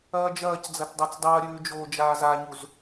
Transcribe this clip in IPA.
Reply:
ɐːd͡ʒɐːcd͡zɐt dˤat͡sdˤɐːɾʲʉː d͡ʒoːd͡ʒaːzaɲuz

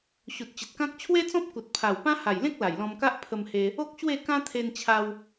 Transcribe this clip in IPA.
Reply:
ɕu˨t̚t͡ɕə˨t̚kã˦k̚ t͡ɕʰwe˦t͡sɔ̃˦p̚ ku˨t̚pʰa˨˩wpã˦ ha˨˩jlẽ˦k̚ la˨˩jlɔ̃˧m ka˦ʔ pʰə˧mhe˧ | o˦k̚ ɕwe˥˧kã˦t̪ʰe˧nt͡ɕʰa˧w

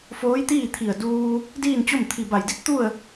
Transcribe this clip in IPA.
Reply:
foː˧˥jt̪iː˥˨t̪ʰi˧˩ə̯ duː˧ | diː˥˨nt͡ɕo˥˨m t̪ʰi˧˩ba˧˩jdi˧˥t̚ t̪u˥˨ə̯

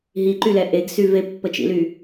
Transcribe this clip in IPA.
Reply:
ɦiǃylɛ ʔeɡsy vepːət͡ʃḭly

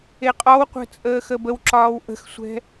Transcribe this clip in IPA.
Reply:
eqʼɒwqʷə̤ t͡sʼəːxəbəwǁɒːw ʔə̤xsʷɛ̤

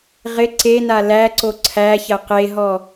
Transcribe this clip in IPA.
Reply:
ʁɪ ǀena læǀo ǀʰæçɐ qeɦɔ

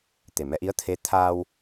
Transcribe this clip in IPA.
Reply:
t̪e˨˩mɛ˧ʔi˧˥ə̯ t̪ʰe˧˥ t̪ʰaː˧w

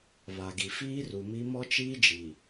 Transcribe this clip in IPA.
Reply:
βa˨ɡi˨ fiː˦ru˨mi˦ mɔ˦t͡ʃiː˦d͡ʒi˨

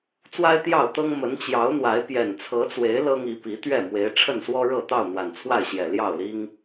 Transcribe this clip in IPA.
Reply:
t͡swa˦ɪ̯t̪jɑ˥˨ʊ̯t̪ɤ˦ŋ mə˨˦nt͡ɕjɑ˨˦ʊ̯n̪wa˨˦ɪ̯ pjɛ˨˩nt͡sʰɤ˨˦t͡swe˨˦ɪ̯ lɤ˦ŋi˨˦ pi˨˦t̪ɥɛ˥˨ mwe˨˦ɪ̯ ʈ͡ʂʰə˥˨nswɔ˦ ɻɤ˥˨ t̪ɑ˥˨ʊ̯n̪wa˨˩nt͡sʰwa˥˨ɪ̯ɕjɛ˨˩ ljɑ˥˨ʊ̯li˦ŋ

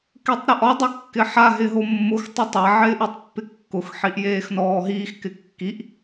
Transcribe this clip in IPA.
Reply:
ketˤɾɪʔɔ dˤɪkːɪħa ɦɪɦomːʊx tˤotˤa ʕɪːʔutˤpːɪkːʊx ħiʔjeːxnɔːɦiːx kɪkːiʔ

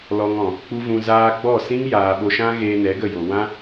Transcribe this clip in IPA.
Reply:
lɔ˧ŋɔ̃˨ | k͡pu˦vũ˧zaː˦ ɡ͡bɔ˦˨sĩ˦ŋ jaː˨ɓo˧ʃã˦ɣeː˧ nɛ˨˦ɡə˦˨jo˨ wã˦

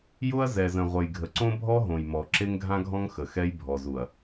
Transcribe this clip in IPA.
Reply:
jʊ˦ɐ̯zɛ˨zə̃˨ʁʷə˨j ɡʱə˨ǀõ˦bʱɔ˦ɦõ˨j mɔ˨ ǁe˦ŋɡʱã˦ɡʱɔ̃˦ŋ xə˨xɛ˦j bʱɔ˨zu˨ɐ̯

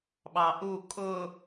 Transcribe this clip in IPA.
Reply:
ɓɑʔu kʼʊ

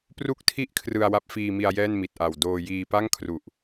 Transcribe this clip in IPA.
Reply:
pru˥˩k̚tʰi˥˩ʔ kʰrɯ˧a̯wa˦˥p̚fiː˧mi˧a̯ jɛː˥˩nmi˨˩t̚ʔa˨˩w doː˧ jiː˧pa˥˩ŋkʰru˨˩ʔ

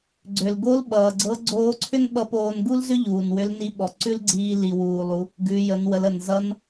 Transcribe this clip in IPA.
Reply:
ɡ͡ǀʏ˩lɡo˧˥lɓʌː˩ ɡ͡ǀɤ˧˥ ɡ͡ǀoː˧˥ǀʰʏ˥n ɓʌ˧˥poː˧n ɡu˥lzʏ˥ ʎuː˩nwʏ˧˥lni˧˥ ɓɔ˩ǀʉ˥lɡ͡ǀiː˧ li˩wuː˩lˠu˩˧ | ɡʉ˩˧ jə˩˧nwə˩˧lə˩n zʌ˧˥n

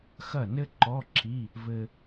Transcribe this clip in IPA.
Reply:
xɐ˥˩nɘ˥ǃɔ˧˥˧ǁʰi˧˥˧ | vɘ˧

